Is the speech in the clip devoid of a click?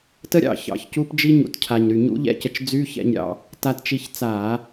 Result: yes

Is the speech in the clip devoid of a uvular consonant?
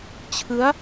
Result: yes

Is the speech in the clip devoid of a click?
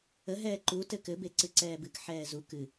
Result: no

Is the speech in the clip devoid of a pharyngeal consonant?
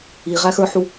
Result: no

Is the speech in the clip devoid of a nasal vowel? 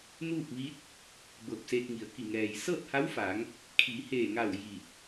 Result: yes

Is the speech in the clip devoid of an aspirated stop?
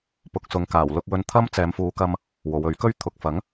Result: no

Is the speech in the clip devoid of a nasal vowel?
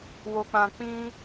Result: no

